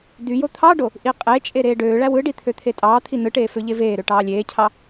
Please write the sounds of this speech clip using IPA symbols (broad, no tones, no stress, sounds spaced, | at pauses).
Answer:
d̪ y j o t̪ʰ ɑ ɖ o | ʔ i qʼ e t͡ʃʼ e ɾ eː ɖ øː ɭ æ w ɯ ɖ i t̪ʰ ø t̪ʰ e tʼ ɑː t̪ʰ i n ɯ ʈ eː f ø ʎ e v eː ɾ ø ʈ ɑː lʲ eː cʰ ɑ